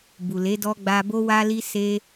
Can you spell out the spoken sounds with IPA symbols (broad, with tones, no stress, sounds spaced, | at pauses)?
b u˨ l e˨˦ d ɔ˧ ɡ͡b a˧ b o˦ w a˦ l i˦ s e˦